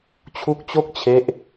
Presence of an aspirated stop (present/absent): present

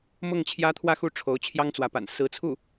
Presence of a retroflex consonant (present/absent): present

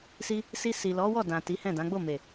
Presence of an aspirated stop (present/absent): absent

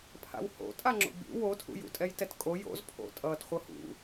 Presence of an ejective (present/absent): present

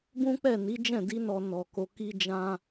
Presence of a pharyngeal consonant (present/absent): absent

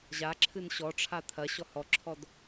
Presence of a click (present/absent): present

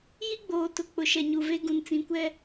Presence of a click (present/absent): absent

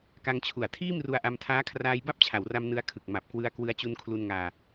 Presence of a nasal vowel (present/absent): absent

